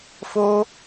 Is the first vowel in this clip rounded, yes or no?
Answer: yes